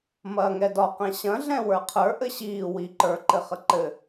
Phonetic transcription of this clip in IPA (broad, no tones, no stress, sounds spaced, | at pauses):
m ɐː ŋ ɛ d ɒ q ɛ̃ ɕ ɐ̃ ɮ ɛ̃ w ə˞ qʰ ə˞ ʔ ɘ ɕ iː w i ǃ ə˞ ǃ ɘ χ ə ǃ ɘ